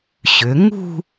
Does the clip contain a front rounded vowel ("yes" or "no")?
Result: yes